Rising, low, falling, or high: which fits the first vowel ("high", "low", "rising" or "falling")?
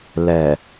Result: low